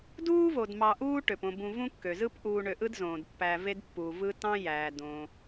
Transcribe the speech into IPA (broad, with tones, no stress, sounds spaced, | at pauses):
d uː˥ v o˩ d m ɑ˨ ʔ uː˦ ʈ ø˩ p õ˨ b ũ˨ v ũ˥ kː ø˩ z ɯ˦ p ʔ uː˨ ɳ ø˨ ʔ ɯ˥ d z õː˩ d pː æ˨ v e˦ d pː uː˩ v ɯ˦ t ɑ̃˥ j æː˩ d õ˩